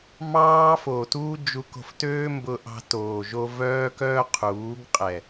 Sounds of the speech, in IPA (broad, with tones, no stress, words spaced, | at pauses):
mɑː˦foː˨tuː˦ d͡ʒu˧ko̤˧ftøː˦ mbʊ˧ʔɑ̤˧ toː˨ʒo˧ vœː˦kœ˦qʰuː˨˦ɡ qʼɛ˨